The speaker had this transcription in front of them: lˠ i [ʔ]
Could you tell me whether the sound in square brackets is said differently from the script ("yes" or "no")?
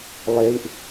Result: no